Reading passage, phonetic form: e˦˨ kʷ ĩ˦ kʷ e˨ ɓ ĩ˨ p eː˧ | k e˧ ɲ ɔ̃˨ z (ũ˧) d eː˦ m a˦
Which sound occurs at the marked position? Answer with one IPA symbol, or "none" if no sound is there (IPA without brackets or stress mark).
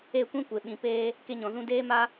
ũ˧